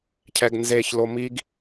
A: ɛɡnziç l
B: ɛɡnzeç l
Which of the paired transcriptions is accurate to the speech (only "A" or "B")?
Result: B